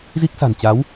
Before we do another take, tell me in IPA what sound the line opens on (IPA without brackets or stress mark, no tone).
z